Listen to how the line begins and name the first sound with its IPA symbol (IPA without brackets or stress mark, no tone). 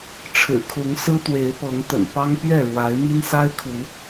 ʈ͡ʂʰ